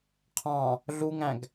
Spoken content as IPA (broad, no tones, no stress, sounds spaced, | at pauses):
qʰ ɑ̃ | ɮ u ŋ æ̃ ɡ